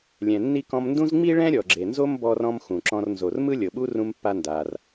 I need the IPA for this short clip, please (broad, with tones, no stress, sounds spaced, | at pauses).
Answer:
lʲ ɛ̃˩ nː i˥ k ɔ̃˧ m n d ũ˥ z ŋ͡m i˥ ɭ ɛ̃˥ ɾʲ ɔ˩ ɡ͡ǁ e˩ n z o˥ m b ɔ˧ r ɔ̃˧ m x ũ˩ ǁ ɔ̃˧ r n z o˩ r m ɯ˥ lʲ ɤ˩ ɓ u˥ r ũ˧ m pː a˧ n d a˩ r